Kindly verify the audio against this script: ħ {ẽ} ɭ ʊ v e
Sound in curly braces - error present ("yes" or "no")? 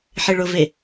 yes